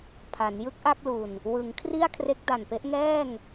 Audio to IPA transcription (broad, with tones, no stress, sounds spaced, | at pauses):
pʰ a˩˦ n j ɯ˦˥ k̚ ʔ a˥˩ k̚ l u˨˩ n | w ɯ˩˦ ŋ kʰ r i˥˩ a̯ kʰ r e˦˥ k̚ d a˨˩ n p e˦˥ ʔ ŋ ɛː˥˩ ŋ